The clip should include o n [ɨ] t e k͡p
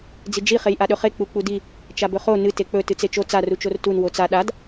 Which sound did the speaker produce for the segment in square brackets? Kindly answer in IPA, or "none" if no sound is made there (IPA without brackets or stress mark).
ɨ